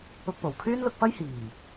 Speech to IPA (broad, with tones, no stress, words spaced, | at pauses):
ʊ˧k̚po˨˩w kʰyː˥nlʊ˧k̚fɐ˥j hiː˨˩